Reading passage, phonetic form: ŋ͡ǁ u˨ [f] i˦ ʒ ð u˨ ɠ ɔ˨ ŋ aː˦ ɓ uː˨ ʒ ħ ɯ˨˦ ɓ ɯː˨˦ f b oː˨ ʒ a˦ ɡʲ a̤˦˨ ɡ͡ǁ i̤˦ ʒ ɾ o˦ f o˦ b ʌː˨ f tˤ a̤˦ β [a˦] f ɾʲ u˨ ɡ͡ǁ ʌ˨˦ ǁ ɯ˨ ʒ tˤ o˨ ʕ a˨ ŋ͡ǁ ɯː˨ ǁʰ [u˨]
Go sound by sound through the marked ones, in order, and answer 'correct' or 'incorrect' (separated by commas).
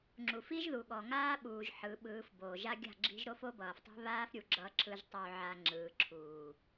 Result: correct, incorrect, incorrect